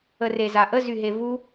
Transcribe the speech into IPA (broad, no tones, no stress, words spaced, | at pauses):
ərezaʔə zyɦevu